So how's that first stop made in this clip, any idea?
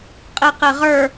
ejective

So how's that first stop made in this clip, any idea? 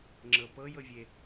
click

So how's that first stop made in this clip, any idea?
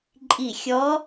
click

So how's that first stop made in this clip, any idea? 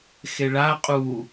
ejective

